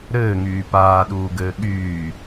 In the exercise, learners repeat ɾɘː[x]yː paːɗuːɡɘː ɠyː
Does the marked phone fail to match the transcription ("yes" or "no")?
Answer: yes